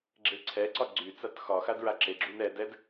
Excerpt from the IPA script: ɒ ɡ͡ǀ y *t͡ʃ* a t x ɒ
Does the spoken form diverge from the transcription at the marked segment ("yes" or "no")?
yes